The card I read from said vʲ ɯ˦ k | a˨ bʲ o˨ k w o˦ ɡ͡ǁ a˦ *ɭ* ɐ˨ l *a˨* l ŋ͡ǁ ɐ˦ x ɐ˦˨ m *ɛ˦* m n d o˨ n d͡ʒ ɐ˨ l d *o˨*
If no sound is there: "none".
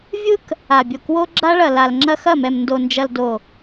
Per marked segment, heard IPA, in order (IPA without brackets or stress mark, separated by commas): ɭ, a˨, ɛ˨, o˨